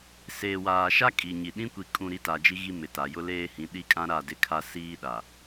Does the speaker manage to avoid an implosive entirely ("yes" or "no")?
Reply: no